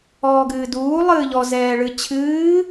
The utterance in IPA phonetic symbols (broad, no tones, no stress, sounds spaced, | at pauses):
ɔː ɡ ɨː d uː lˠ ɨː ʎ ɔ z ɛː ɭ ɨ t͡ɕʰ ɨː